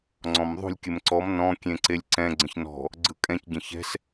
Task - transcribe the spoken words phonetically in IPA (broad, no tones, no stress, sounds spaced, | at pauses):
ŋ͡ǀ ɔ̃ m ðˤ ṳ lʲ kʲ ɘ m ǀ ɔ m n ɔ̃ kʲ ẽ ǀ e lʲ ǀ ɛ̃ ɡ͡ǀ ə̃ ç n ɔ̤ | ɡ͡ǀ ɯ kʼ ɛ̃ c ɟ ə̃ ç ɛ̤ s